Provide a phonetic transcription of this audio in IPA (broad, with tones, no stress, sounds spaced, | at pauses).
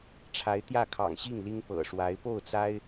ʈ͡ʂʰ a˧˥ ɪ̯ t̪ j ä˥˩ kʰ ɑ̰˨˩ ŋ ɕ i˥˩ ŋ l i˥ ŋ p ɤ̰˨˩ ʂ w a˧˥ ɪ̯ p o˥˩ ʊ̯ t͡s a˥ ɪ̯